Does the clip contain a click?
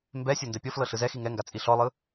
no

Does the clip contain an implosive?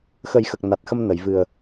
no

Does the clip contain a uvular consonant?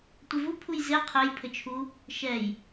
yes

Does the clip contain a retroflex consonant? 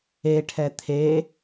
yes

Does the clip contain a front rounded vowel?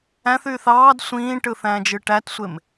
yes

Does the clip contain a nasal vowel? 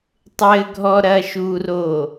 no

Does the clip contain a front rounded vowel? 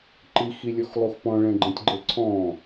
no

